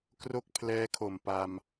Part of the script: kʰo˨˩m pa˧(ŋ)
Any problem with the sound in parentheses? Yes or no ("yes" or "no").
yes